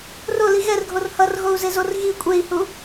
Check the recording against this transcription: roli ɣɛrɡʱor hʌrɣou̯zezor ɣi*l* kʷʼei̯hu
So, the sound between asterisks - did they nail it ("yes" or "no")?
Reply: no